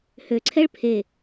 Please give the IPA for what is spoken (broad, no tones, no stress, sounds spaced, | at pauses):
h ø ǀʰ ɛ ɭ pʰ e